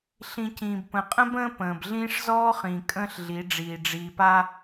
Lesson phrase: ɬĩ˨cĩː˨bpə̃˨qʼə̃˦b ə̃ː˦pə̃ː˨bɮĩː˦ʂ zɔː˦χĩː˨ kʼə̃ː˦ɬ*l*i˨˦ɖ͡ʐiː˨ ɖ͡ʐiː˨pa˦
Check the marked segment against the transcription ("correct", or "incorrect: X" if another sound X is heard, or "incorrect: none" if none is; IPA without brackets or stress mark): incorrect: ɮ